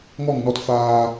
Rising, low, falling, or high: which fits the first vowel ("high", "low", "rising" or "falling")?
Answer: falling